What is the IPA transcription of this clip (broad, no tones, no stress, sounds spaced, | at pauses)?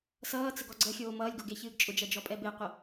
s ʌː t͡s ə ɡ ɔ ɡ͡ǀ ə xʲ oː m ʌː lʲ ɡ o ɡ e ç ɨː ɡ t͡ʃʼ ʊ d͡ʒ ɜ d͡ʒ ɔ pʼ ɛ b e qʷ ə